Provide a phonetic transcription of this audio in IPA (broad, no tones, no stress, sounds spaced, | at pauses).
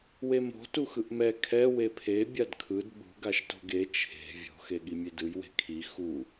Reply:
w e m o̤ t u x ɯ ʔ m ɛ kʰ ɛ w e pʰ e bʲ a d kʰ ɯ d ɓ ṳ ɡ a ʃ t o̤ ɡ e t͡ʃʰ e̤ vʲ o̤ x e ɠ i mʲ e d ɯ j w e̤ kʰ i x u